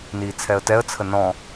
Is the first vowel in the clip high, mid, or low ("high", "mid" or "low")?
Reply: high